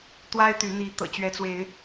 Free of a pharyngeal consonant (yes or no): yes